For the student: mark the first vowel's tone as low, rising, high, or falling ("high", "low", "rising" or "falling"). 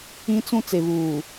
high